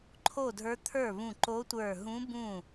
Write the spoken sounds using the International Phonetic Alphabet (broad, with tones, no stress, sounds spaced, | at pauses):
ǃʰ o˥˩ dʱ ə˞˧˥ t̪ʰ ə˞˥˩ β ũ˧˩ ǃ o˧˥ tʷ ə˞˧˩ ɦ ũ˧˥ b ũ˥˩